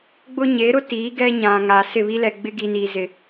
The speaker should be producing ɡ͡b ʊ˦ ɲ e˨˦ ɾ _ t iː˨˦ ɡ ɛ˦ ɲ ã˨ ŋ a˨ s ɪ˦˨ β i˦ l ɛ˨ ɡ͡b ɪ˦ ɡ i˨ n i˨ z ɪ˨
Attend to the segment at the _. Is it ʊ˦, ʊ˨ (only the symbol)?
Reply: ʊ˦